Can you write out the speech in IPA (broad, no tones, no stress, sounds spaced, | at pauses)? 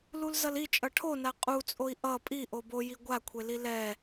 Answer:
l u l z ʌ l i t͡ʃʼ ʌ ʈʰ o n a qʼ u t͡sʼ o i̯ ʔ ʌ pʼ i ʔ o b o j i ɡʷ a kʷʰ e l i l ɛ